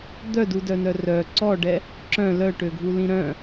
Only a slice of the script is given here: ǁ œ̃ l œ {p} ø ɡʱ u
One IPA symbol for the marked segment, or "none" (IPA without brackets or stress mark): ʈ